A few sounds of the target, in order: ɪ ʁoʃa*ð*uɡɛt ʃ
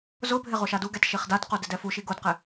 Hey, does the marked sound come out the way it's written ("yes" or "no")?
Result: no